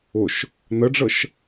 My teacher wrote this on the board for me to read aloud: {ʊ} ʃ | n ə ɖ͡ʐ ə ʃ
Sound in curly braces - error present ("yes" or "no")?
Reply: no